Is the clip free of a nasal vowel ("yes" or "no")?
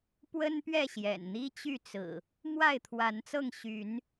yes